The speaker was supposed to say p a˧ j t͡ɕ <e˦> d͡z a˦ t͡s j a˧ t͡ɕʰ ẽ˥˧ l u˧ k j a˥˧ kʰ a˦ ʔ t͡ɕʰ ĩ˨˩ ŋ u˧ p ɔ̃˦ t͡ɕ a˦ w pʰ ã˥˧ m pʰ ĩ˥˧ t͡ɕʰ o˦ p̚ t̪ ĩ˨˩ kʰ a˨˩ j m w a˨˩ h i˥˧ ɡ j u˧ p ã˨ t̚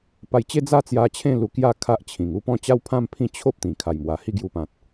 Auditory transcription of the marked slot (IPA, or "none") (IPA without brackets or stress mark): e˦